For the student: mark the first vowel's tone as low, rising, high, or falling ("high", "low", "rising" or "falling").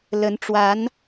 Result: rising